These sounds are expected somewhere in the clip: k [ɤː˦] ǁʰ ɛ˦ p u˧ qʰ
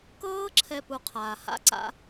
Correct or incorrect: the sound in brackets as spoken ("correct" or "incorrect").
correct